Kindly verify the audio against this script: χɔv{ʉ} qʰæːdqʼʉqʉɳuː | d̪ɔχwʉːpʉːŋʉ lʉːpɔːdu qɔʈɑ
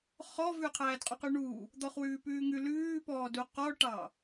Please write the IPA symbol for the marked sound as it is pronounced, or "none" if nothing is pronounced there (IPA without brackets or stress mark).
ʉ